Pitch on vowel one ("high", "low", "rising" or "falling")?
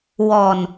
low